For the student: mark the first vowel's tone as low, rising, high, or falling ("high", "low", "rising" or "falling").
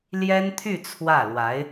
high